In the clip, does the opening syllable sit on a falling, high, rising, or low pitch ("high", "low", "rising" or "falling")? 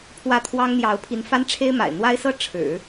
falling